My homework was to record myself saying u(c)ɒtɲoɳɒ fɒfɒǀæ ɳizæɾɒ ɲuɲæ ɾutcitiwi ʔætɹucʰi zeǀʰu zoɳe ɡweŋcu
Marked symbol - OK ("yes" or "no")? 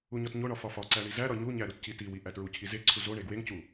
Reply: no